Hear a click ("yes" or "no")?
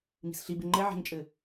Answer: yes